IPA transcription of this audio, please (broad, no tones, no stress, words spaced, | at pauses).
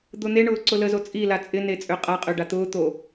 d̪ʊn̪eɳʊː ǀʊləzo t͡sʼila t͡sʼɪne t͡sʼøqʼaqʼø ɖat̪ʊːt̪o